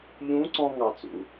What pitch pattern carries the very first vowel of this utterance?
rising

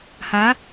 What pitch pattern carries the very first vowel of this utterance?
rising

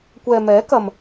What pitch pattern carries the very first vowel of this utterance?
low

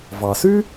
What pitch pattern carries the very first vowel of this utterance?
low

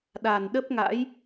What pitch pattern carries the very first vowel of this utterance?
low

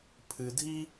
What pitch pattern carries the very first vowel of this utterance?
low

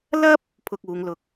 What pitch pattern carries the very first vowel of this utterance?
high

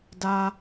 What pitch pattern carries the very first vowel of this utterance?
high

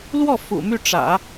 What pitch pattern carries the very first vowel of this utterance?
falling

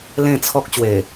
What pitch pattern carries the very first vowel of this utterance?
falling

